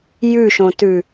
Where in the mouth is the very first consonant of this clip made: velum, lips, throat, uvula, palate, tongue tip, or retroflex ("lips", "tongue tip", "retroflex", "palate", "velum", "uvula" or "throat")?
palate